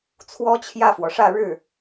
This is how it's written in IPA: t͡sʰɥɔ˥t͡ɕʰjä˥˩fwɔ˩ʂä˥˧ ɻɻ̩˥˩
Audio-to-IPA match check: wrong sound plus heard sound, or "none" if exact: ɥ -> w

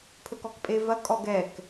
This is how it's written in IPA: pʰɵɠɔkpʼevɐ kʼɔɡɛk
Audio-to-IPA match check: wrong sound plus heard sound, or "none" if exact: ɠ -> k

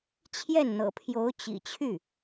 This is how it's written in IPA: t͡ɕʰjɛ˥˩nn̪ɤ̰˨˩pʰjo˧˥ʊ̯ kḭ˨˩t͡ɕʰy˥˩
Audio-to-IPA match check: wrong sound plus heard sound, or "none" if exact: k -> t͡ɕ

